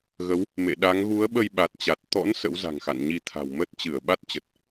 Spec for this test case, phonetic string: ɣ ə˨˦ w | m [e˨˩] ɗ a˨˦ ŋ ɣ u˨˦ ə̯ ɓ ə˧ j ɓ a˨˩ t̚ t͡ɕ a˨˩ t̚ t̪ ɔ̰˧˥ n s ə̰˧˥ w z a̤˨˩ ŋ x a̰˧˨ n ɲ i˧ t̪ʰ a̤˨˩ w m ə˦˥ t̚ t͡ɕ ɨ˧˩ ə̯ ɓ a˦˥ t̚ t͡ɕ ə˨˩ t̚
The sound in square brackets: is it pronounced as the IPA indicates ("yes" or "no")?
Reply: no